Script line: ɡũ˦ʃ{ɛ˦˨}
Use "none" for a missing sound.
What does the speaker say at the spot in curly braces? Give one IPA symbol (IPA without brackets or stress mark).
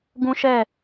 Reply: ɛ˦˨